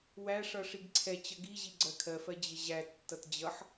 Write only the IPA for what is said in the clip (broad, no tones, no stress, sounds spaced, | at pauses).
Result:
w æ ʂ ʌ ʂ i ɡ ǀʰ ɛ t͡ɕ ʌ ɡ i ʑ i ɡ͡ǀ ɜ kʰ ɜ f ɜ d͡ʑ ɪ ʑ æ tː ʌ t d͡ʑ ʌ ħ